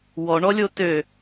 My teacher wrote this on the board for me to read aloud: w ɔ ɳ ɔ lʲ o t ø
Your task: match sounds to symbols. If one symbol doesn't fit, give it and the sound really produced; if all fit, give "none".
none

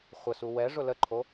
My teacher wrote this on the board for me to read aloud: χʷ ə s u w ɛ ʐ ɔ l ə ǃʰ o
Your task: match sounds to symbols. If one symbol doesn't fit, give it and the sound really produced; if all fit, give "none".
ɔ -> ʊ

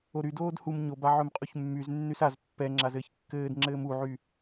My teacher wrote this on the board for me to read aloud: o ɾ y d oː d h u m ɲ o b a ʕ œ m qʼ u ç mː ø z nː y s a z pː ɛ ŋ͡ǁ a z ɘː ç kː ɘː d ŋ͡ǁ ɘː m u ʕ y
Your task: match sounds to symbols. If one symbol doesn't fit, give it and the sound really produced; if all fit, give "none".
ø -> y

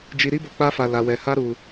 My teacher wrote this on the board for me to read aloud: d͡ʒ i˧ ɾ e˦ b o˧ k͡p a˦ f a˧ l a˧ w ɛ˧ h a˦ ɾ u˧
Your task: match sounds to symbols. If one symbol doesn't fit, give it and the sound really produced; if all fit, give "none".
e˦ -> i˦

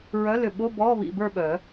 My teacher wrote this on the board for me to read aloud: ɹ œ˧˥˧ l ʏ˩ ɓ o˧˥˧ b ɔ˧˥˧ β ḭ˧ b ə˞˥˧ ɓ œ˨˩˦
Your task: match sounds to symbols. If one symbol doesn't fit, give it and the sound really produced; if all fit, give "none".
none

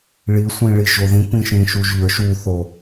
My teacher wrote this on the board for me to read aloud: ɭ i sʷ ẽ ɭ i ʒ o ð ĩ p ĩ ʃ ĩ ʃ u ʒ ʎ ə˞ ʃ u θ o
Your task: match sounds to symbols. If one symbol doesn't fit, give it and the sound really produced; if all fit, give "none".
ẽ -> ĩ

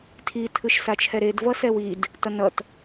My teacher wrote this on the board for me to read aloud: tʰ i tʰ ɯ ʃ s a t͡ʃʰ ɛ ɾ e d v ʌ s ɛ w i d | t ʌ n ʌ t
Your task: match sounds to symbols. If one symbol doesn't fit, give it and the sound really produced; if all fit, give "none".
none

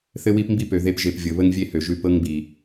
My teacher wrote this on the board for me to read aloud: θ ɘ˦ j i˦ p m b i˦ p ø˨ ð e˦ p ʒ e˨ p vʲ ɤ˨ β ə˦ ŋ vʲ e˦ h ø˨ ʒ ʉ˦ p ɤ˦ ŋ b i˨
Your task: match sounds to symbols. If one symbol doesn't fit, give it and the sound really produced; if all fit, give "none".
j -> w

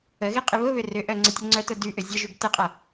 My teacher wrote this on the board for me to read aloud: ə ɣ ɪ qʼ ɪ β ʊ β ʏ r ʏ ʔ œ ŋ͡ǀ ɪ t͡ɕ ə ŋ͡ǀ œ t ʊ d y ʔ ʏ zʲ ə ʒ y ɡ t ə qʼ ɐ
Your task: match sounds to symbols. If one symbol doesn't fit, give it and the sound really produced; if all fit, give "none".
t͡ɕ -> tʲ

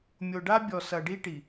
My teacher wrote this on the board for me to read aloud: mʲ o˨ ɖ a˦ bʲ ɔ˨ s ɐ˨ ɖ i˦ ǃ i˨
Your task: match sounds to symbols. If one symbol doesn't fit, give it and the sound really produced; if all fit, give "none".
ǃ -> ʈ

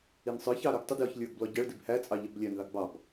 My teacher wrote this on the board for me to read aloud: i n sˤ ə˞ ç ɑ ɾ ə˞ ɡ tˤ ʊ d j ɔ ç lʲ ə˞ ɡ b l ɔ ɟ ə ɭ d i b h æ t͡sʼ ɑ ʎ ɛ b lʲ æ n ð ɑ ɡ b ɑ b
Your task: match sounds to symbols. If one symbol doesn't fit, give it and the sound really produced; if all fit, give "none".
none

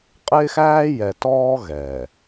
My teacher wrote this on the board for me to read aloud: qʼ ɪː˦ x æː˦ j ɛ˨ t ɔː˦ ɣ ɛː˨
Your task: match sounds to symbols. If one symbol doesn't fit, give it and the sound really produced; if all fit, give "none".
none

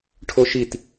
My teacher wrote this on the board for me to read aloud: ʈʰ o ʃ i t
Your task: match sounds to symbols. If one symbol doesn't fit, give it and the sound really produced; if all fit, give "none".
none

